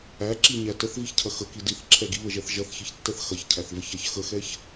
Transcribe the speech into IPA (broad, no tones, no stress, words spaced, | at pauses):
æǁiɲæ təθviçcʰɐ xəki diθǁʰɛ ɡiβəʒɛθ ʒɐθçiçtːɛθ xɐçcʰæθvəçæç xəxɛç